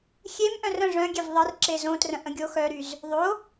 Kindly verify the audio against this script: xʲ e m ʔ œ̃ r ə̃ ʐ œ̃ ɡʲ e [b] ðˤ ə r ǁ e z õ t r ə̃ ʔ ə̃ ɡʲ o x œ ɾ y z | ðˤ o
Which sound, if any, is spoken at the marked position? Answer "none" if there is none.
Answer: v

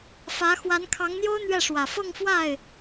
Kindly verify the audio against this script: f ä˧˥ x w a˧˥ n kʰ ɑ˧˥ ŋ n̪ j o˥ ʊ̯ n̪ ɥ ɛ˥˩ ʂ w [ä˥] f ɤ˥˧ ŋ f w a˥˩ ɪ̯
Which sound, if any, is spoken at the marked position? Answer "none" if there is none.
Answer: ä˨˩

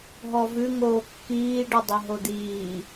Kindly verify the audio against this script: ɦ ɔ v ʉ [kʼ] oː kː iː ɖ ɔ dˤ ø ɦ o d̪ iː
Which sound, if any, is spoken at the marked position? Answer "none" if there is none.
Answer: ŋ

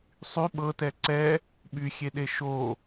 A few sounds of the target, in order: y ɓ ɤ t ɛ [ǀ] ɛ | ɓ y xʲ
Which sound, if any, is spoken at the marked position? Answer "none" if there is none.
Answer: ǀ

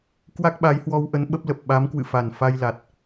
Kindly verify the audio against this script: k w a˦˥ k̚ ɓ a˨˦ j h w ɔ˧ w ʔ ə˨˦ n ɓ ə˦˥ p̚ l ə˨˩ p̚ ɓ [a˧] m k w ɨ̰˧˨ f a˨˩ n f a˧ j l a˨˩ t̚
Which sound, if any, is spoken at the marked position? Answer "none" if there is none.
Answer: a˨˦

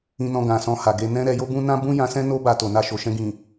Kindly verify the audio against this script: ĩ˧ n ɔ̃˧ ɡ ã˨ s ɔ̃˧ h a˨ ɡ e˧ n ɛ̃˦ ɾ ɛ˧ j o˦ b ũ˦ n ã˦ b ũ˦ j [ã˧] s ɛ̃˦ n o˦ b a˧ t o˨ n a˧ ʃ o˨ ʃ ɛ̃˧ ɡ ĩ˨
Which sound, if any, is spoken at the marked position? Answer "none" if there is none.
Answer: ã˧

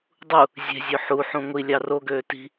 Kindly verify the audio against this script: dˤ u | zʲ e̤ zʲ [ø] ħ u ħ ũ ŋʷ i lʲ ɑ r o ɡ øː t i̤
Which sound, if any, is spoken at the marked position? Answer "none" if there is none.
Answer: ø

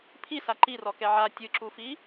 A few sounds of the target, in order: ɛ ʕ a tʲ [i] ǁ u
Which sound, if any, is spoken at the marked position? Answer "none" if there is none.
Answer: ɨ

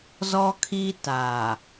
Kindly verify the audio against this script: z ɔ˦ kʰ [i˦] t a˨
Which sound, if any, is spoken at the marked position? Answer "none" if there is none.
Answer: i˦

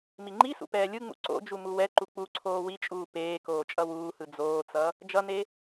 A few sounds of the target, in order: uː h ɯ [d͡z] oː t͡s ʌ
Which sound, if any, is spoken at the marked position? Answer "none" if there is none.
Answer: d͡z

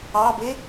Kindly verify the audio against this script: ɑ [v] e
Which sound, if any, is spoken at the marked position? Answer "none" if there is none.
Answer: b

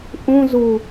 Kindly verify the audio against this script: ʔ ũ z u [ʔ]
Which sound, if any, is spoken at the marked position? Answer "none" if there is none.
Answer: none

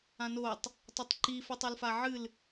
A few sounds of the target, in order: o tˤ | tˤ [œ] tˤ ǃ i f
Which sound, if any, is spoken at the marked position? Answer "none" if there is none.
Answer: ɵ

